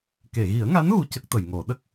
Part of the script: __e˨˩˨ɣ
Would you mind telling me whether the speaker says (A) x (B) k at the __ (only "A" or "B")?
B